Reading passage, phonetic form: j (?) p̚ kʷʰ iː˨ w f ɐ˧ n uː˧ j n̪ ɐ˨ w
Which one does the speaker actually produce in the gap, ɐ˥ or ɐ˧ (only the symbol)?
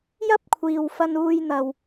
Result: ɐ˥